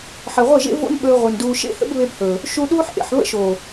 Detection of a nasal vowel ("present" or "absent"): absent